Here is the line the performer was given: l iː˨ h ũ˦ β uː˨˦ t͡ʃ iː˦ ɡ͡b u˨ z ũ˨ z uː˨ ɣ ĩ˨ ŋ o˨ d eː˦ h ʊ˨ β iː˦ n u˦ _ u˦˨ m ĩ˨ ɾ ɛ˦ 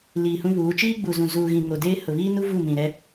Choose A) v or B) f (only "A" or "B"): A